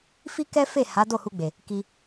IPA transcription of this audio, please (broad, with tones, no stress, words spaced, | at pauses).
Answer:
fi˦kɛ˦fe˦˨ ha˨˦do˦˨hu˧ɡ͡be˨ | ki˧